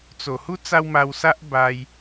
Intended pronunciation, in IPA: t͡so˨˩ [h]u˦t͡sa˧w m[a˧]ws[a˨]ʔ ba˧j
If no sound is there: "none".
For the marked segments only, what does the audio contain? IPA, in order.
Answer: h, a˧, a˦

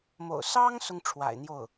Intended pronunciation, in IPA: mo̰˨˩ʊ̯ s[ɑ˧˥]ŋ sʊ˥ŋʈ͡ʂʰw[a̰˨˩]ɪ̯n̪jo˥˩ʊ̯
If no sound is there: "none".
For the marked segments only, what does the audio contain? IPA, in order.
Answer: ɑ˥, a̰˨˩

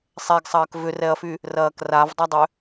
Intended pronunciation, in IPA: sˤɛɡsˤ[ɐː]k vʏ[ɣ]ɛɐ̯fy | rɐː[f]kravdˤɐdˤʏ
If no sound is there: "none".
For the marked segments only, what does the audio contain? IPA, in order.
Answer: ɐː, r, none

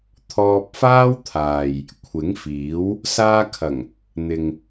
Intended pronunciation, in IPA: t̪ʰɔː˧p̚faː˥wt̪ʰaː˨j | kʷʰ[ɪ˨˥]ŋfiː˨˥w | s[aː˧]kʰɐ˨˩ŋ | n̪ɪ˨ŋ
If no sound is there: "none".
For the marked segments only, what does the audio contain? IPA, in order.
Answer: ɪ˨˥, aː˧

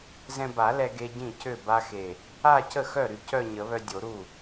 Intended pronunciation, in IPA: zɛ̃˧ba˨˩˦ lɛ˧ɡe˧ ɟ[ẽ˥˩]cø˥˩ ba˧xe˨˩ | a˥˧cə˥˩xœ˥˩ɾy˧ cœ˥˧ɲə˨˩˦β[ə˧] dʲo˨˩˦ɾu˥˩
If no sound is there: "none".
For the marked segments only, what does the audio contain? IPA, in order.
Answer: ĩ˥˩, œ˧

